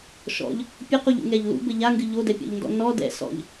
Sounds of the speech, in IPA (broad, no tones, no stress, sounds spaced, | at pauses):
ʃ ɔ̰ ʎ | pʲ ɘ q u ʎ ṵ ŋ ɛ ʎ l ṵ b ɘ ʎ a ŋ ɡ ɨ ʎ o d ɛ pʲ ɔ̰ ʎ n d ɔ̰ n ɔ d ɛ̰ s ɔ̰ ʎ